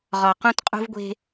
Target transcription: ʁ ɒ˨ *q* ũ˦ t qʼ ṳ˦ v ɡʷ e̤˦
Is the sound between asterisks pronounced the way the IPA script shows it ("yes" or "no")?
yes